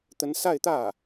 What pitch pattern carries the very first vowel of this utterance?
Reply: rising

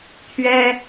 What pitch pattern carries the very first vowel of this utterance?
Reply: high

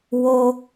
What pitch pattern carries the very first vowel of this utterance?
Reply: high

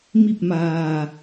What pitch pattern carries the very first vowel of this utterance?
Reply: falling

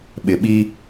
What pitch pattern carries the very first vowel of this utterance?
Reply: low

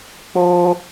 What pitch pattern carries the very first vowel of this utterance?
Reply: high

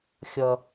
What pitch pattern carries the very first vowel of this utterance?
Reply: low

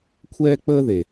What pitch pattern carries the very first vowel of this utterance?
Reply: high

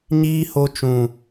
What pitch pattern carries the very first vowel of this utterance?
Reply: high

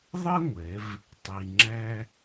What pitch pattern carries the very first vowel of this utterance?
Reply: high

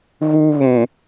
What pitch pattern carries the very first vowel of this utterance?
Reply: high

